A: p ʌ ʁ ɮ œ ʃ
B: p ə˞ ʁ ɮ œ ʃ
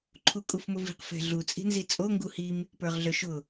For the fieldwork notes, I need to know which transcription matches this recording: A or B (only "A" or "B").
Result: B